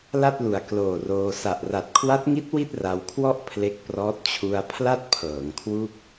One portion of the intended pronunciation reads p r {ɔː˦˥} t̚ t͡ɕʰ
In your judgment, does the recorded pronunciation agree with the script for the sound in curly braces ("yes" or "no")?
yes